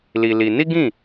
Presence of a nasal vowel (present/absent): present